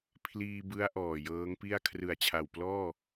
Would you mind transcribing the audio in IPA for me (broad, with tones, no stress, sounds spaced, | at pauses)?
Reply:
pʰ l iː˧ b ɯ˦˥ a̯ ʔ ɔː˨˩ j ɤː˦˥ ŋ p i˥˩ a̯ kʰ r ɯ˨˩ a̯ t͡ɕʰ a˨˩ w p l ɔː˥˩